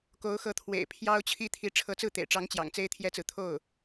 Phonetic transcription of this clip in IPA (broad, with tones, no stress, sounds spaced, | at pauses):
k o˧˥ ʊ̯ x ɤ˧˥ t̪ʰ w ḛ˨˩ ɪ̯ pʰ j ɑ˥ ʊ̯ t͡ɕʰ i˥ t̪ʰ i˧˥ ʈ͡ʂʰ ɤ˧˥ t͡s ɹ̩˥˩ t̪ ḛ˨˩ ɪ̯ ʈ͡ʂ ɑ˧˥ ŋ t͡ɕ j ɑ̰˨˩ ŋ t͡s e˥ ɪ̯ t̪ʰ j ɛ˥ t͡s ɹ̩˨ t̪ʰ o˥˩ ʊ̯